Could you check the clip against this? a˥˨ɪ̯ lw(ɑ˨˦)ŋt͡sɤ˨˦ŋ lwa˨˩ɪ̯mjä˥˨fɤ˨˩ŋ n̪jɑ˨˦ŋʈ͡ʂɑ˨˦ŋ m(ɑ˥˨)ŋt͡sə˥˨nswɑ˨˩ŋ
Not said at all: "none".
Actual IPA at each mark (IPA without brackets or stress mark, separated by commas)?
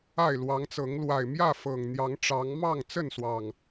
ɑ˨˦, ɑ˥˨